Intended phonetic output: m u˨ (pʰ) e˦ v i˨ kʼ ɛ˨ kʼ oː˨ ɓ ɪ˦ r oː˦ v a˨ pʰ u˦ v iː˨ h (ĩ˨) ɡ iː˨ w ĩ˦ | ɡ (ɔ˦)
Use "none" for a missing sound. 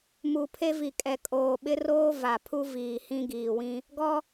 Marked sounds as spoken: pʰ, ĩ˦, ɔ˦

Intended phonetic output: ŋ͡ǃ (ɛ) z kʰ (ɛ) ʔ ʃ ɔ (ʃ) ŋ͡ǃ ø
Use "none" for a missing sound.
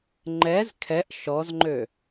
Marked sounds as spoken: ɛ, ɛ, z

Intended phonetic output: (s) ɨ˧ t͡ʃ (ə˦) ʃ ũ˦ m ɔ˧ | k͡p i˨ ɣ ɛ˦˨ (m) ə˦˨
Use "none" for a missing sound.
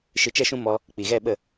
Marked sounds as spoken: ʃ, ɛ˦, ɓ

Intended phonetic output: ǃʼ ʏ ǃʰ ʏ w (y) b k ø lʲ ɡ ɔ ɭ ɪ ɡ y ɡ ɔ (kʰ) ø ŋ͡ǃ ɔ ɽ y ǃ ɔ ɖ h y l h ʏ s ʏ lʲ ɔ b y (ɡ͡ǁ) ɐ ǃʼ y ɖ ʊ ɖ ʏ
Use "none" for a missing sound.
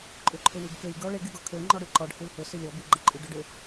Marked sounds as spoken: y, kʰ, ɡ͡ǃ

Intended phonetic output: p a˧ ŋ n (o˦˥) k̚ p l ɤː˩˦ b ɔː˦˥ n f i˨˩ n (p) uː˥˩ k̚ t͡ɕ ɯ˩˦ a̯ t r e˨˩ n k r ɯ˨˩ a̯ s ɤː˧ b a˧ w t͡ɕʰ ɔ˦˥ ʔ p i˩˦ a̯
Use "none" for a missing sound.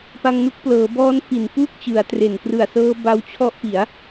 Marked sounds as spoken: u˦˥, p

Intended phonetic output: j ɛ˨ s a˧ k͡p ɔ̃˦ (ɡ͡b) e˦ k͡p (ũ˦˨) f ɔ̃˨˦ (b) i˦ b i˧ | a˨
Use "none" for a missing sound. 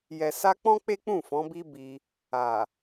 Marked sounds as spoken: k͡p, ũ˦˨, b

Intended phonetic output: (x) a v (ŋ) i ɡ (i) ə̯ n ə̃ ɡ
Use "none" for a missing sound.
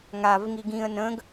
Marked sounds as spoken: ŋ, ŋ, ĩ

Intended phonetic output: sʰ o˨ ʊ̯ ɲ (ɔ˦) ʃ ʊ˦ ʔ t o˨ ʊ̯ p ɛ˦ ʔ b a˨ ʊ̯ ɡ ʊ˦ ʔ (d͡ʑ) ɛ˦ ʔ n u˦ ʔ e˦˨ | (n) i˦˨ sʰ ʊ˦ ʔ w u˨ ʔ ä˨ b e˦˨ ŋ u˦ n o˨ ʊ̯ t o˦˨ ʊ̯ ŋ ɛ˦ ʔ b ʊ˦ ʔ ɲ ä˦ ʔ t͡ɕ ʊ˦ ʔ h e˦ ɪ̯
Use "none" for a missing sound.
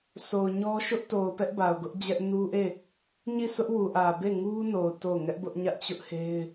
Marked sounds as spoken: ɔ˦, d͡ʑ, ɲ

